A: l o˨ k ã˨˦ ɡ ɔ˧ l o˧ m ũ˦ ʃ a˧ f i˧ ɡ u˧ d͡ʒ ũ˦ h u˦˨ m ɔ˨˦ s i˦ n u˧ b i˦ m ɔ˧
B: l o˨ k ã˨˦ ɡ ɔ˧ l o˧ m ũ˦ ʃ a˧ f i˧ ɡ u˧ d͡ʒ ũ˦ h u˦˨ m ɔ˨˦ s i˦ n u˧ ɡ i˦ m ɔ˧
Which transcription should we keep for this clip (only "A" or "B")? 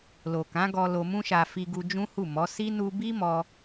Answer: A